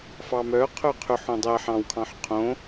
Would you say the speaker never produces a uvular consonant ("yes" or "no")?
no